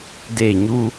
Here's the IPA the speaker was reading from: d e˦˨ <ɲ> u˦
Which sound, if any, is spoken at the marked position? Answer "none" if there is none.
ɲ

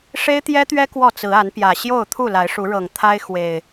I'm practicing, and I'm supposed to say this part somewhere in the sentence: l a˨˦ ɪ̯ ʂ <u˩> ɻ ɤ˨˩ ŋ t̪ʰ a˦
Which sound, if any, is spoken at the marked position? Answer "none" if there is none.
u˨˦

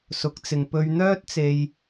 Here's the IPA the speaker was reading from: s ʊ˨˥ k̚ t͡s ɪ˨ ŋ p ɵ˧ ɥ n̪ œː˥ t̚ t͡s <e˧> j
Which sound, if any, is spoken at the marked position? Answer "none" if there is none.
e˧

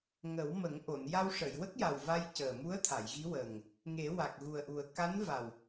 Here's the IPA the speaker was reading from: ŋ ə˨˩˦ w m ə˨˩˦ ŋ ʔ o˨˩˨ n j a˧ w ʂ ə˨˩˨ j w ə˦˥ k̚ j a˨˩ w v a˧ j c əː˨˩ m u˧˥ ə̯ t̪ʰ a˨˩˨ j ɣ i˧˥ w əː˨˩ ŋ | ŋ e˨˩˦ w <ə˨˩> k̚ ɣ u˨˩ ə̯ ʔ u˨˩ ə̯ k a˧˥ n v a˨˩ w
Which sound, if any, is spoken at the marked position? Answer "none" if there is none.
a˨˩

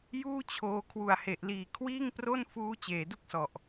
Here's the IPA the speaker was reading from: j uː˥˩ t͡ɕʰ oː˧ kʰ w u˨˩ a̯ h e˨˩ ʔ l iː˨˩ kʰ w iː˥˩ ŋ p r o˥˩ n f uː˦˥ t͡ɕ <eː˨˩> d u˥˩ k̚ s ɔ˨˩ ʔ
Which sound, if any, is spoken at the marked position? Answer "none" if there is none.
eː˨˩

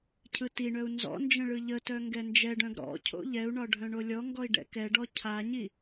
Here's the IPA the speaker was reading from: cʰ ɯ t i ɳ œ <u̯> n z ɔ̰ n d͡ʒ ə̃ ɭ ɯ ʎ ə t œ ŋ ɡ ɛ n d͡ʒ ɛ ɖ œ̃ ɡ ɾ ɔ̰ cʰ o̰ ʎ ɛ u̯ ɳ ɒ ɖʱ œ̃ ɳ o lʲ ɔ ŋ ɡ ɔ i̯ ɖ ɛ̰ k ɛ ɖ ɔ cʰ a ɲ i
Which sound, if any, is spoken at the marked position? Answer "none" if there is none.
u̯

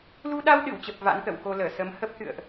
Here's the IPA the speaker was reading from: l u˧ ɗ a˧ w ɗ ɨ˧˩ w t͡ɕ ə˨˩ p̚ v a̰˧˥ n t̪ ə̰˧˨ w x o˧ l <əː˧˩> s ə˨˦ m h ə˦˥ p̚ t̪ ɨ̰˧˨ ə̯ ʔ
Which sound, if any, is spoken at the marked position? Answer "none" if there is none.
əː˧˩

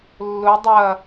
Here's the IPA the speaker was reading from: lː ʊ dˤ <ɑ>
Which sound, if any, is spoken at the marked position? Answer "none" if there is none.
ɐ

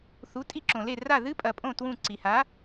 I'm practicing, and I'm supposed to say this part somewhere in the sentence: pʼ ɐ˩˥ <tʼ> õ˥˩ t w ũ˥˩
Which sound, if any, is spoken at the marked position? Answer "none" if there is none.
pʼ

